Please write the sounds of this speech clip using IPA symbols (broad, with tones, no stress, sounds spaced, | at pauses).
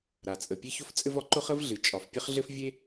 ɾ a˩ t͡sʼ ə˩ pʲ e˥ ç ʊ˥ f t͡sʼ ɘ˥ v ɒ˩ ǃ ʊ˥ χ ə˥ v ɮ ɨ˩ t͡ʃʼ ɒ˩ f pʲ ɘ˥ χ ɮ ɘ˥ f vʲ e˥